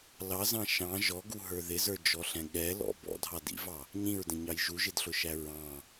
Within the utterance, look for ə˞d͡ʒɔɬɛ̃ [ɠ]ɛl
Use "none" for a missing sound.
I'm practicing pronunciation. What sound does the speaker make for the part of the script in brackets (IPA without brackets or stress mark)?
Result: ɠ